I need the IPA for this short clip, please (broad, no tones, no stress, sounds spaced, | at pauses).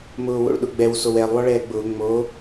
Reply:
m ʊː w o̰ ɭ ɗ ʊ ɡ͡b ɛ w s o w ɛ lˠ w ɔ ɭ ɛː ɡ͡b ʊː ŋ͡m o